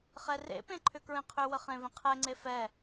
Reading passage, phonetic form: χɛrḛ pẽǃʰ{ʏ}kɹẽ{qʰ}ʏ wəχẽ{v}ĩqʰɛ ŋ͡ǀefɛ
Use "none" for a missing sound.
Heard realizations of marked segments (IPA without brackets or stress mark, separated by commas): ʏ, qʰ, v